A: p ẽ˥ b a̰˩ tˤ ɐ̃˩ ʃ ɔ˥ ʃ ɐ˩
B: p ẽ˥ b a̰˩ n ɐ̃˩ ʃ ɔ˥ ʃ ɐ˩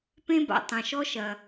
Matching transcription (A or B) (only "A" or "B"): A